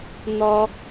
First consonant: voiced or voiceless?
voiced